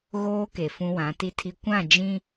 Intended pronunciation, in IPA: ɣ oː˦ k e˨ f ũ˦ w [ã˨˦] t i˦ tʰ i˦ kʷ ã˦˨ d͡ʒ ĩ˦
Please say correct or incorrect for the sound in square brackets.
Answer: correct